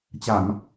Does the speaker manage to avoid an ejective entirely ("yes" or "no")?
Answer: yes